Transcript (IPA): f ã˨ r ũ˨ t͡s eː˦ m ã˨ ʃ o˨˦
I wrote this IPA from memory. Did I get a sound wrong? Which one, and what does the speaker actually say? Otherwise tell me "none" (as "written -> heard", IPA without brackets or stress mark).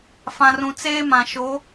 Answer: none